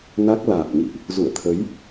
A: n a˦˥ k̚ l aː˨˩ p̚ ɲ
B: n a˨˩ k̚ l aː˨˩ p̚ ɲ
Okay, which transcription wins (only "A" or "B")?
A